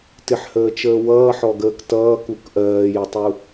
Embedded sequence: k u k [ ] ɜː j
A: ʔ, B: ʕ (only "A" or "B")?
A